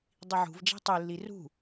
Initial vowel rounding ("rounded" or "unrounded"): unrounded